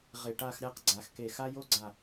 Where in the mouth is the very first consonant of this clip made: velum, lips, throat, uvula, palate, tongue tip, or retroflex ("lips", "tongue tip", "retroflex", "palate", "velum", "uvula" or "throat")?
uvula